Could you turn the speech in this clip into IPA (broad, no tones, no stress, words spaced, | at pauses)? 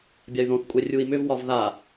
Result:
bʲay̯ðõθkʷʼɛ rʲui̯mʏvwɒv ða